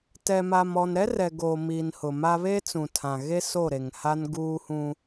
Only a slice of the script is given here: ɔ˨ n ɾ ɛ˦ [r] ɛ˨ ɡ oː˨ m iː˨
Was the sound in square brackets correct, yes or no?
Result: yes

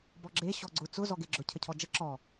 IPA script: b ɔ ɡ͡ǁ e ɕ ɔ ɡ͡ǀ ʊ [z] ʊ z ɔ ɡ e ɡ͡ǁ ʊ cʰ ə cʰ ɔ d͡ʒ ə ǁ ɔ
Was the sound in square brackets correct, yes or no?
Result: no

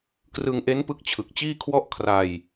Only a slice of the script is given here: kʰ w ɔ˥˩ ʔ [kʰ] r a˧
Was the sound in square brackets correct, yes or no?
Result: yes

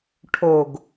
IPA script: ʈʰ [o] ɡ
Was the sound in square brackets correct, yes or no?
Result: yes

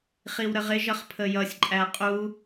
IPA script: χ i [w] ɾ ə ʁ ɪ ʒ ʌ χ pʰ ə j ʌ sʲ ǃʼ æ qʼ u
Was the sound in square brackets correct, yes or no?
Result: yes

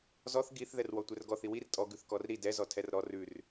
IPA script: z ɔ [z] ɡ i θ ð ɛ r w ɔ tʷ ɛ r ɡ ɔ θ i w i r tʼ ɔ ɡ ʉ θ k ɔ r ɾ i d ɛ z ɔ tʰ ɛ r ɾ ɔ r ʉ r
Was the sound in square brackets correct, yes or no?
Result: no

